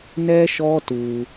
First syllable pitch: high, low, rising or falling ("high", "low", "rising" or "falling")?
high